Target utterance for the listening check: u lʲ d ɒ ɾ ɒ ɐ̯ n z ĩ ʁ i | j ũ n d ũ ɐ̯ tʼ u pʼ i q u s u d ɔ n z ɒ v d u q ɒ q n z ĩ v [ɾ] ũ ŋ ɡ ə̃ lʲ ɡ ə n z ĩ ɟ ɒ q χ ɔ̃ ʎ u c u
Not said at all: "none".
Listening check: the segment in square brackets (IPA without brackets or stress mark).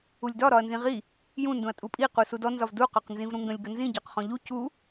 ɾ